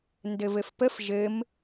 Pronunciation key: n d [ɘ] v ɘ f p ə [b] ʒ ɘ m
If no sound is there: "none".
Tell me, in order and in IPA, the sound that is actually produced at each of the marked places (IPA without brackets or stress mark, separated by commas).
ɘ, f